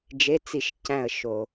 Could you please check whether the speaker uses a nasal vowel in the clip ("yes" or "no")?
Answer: yes